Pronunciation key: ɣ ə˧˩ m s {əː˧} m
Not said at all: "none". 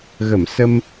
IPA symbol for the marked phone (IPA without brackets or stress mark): ə˧